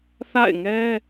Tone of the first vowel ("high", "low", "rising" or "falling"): falling